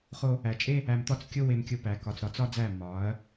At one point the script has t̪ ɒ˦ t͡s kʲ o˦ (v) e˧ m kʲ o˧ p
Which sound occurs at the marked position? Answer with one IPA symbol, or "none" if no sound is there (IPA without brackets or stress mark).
w